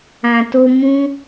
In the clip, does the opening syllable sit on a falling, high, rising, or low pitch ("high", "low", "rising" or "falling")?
low